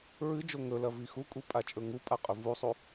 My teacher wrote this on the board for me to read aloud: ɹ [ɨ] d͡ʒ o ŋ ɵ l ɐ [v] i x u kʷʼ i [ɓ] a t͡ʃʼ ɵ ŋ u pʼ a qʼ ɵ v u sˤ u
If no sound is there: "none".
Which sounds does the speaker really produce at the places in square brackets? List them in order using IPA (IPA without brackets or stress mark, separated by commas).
ɨ, v, pʼ